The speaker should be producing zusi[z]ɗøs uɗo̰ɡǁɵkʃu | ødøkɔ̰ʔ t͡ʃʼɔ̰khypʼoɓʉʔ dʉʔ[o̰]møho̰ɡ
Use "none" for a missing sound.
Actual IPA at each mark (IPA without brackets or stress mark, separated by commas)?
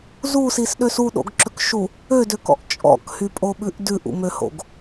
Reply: s, ṵ